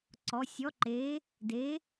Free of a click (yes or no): no